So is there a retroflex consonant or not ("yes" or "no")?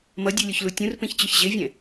no